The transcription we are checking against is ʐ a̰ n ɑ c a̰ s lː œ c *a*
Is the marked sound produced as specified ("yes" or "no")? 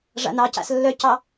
no